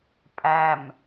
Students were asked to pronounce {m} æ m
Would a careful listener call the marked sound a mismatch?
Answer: yes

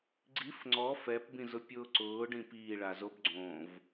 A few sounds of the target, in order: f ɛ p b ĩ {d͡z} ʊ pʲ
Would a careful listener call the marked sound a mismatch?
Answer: yes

